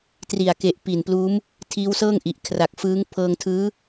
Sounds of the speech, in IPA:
t r i˨˩ a̯ k e˨˩ ʔ p i˨˩ n p l uː˦˥ m | tʰ iː˦˥ w s ɤː˥˩ ŋ ʔ i˨˩ ʔ kʰ r a˨˩ k̚ f ɯː˦˥ ŋ pʰ ɤː˧ ŋ tʰ ɯː˦˥

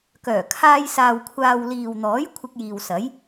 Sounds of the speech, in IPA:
k œː˨˩ kʰ aː˧ j s aː˨ w kʷʰ aː˨ w l iː˨ w n̪ ɔː˨˥ j kʷʰ ɪ˧ k̚ j iː˨ w s ɐ˨˥ j

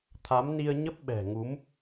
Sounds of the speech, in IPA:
t̪ʰ a˨˦ m n i˧ ə̯ ɲ ə˦˥ p̚ ɓ ɛ̤˨˩ ŋ u˨˦ m

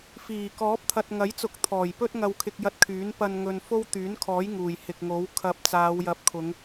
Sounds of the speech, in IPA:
f iː˨˩ k ɔː˨˥ p̚ t̪ʰ ɐ˨ t̚ ŋ ɐ˨˥ j t͡s ʊ˨˥ k̚ t̪ʰ ɔː˨˩ j p ɵ˥ t̚ ŋ ɐ˧ w kʰ ɪ˧ k̚ j ɐ˧ t̚ kʰ yː˨˥ n p ɐ˧ n ŋ ɵ˧ n f o˥ w t̪ yː˨˥ n kʰ ɔː˨˥ j ŋ uː˨˩ j h ɪ˨ k̚ ŋ o˨˥ w kʰ ɐ˨˥ p̚ t͡s aː˨˧ w j ɐ˨˥ p̚ kʰ ʊ˨˧ ŋ

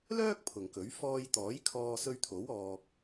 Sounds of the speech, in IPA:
l œː˥ k̚ pʰ ʊ˨ ŋ k ɵ˨˥ ɥ f ɔː˧ j t̪ ɔː˨˥ j kʰ ɔː˧ s ɵ˧ ɥ t̪ʰ o˨˥ w ɔː˧ k̚

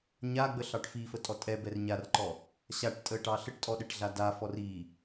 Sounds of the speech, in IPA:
ɲ a ɡ͡b ə ɬ ɑ ʈ f i f ə tʼ ɔ tʼ ɛ b ɛ r ɲ a r ǃ ɔ | ɕ a ʈ tʼ ə ʈ ɑ ɬ ə ʈ tʼ ɔ ɗ ɛ ʈ ɮ a d a f ɔ r i

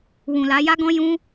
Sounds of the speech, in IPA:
w ũ˨ l a˨˦ j a˦ ɡ ɔ̃˦ j ũ˦

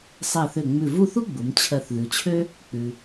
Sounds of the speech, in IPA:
sˤ ɛ˧˩ θ ø˧˩ ŋ͡m ʉ˧˩ v u˥˧ θ u˥ ɡ͡b u˩˧ m t͡ɕʰ ɜ˧˩ θ ð ʉ˩˧ t͡ɕʰ ø˥ | k͡p ʉ˧

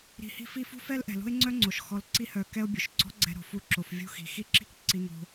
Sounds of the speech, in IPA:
ɾ i̤˧ h i̤˦ f i˦ f ṳ˦ f ɛ˦ l ʔ ɛ̤˨ l o̤˦ e̯ ŋ͡ǀ œ˦ ŋ͡ǀ o˨ ʃ x ɔ˧ l ǀ i˦ h œ˧ k ɛ˦ o̯ bʲ o˨ ʃ ɡ͡ǀ ɔ̤˦ ɡ͡ǀ ɛ̤˧ ɾ o̤˨ f u˦ ǁ o˧ f vʲ ṳ˦ x i̤˨ x i˦ ǁ i̤˦ k ǀ i˦ ŋ o̤˦

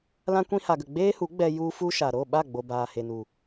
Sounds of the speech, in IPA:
l ã˧ kʷ ĩ˧ h a˨ ɡ ə˨ ɡ͡b eː˦ h u˨˦ ɡ͡b ɛ˧ j u˧ f u˧ ʃ a˨ ɾ o˦˨ ɓ a˦˨ ɡ͡b o˨ b aː˨ h e˨ n u˨

